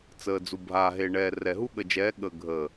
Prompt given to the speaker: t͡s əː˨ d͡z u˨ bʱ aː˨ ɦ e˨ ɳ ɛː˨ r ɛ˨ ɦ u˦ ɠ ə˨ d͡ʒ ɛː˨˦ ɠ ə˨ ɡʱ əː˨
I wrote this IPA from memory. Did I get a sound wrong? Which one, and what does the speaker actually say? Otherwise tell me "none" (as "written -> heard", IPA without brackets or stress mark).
none